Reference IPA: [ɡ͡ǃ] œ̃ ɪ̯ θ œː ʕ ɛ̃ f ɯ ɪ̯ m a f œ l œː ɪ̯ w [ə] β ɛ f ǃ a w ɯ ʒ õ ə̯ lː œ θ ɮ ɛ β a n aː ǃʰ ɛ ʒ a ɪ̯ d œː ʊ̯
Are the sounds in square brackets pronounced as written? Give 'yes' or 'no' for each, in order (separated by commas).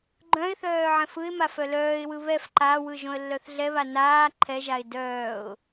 yes, no